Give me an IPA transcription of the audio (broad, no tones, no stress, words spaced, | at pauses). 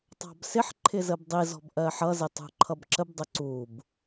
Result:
tˤɑ̤bsɪħ ǃʰɪzəbdˤi zɔ̤bʔɜħʌ zɪtˤṳǃʰʌbǁəb dˤʊǀub